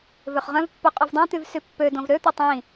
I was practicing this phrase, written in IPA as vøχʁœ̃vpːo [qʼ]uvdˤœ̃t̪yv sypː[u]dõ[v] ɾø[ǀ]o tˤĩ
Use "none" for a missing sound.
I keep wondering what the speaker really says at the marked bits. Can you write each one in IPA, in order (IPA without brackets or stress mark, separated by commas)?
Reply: qʼ, ø, v, t̪